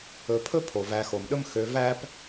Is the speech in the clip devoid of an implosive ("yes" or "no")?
no